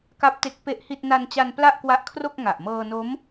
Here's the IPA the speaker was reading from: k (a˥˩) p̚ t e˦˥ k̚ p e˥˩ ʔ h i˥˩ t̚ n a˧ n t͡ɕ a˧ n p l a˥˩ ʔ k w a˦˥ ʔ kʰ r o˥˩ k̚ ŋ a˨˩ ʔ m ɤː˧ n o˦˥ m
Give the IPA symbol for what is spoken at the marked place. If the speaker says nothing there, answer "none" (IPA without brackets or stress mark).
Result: a˦˥